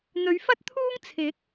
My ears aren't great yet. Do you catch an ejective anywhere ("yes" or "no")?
no